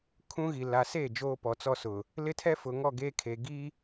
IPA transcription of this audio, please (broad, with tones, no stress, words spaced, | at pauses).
kʰũ˦ɣi˨ la˨se˦˨ d͡ʒoː˦pɔ˨t͡sɔ˦sʊ˨ | lɪ˦tʰɛ˦fʊ˨ŋɔ˦˨ ɡeː˦kʰe˨ɡi˦